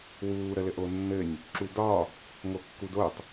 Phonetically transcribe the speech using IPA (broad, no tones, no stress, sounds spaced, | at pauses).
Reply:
w uː ɾ ə l ɘ ʔ o nː ɘ nʲ | ǁ u d ɒ | ŋ o kː u d o tˤ